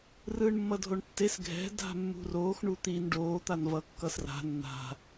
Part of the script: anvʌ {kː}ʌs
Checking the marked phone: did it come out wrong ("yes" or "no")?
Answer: no